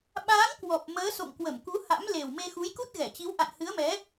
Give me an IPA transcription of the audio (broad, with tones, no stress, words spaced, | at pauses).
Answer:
ɓaː˨˦ŋ kwɔ˨˩p̚ məː˨˦ so̰˧˨ŋkwə˧˩mku˨˦ ha̰˧˥m le˨˩wme˧ xu˨˦j ku˦˥t̚ɣɛ˧˩t͡ɕi˨˦w ʔa̰˧˨nhɨ˨˦ə̯mɛ˨˦